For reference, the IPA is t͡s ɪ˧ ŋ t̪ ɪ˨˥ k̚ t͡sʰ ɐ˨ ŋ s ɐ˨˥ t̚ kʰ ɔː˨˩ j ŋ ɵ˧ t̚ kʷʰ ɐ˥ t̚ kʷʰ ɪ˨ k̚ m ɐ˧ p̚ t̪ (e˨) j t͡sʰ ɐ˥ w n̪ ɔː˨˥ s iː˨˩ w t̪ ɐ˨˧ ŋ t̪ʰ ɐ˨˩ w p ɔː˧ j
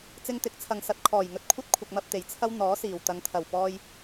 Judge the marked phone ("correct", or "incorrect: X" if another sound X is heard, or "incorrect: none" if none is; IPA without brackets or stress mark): incorrect: e˨˩